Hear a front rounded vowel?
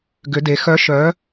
yes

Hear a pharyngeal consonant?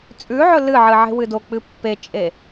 yes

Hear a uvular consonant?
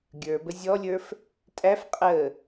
yes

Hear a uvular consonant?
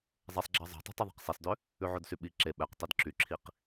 yes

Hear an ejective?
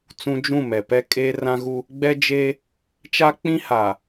yes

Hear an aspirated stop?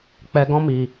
no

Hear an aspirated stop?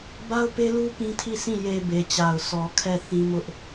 yes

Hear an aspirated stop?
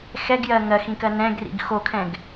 yes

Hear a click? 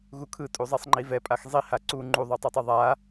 yes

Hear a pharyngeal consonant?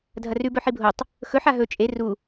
yes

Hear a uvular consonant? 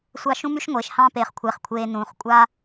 yes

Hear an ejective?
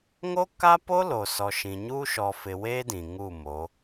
no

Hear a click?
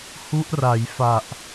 no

